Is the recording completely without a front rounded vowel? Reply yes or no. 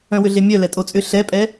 no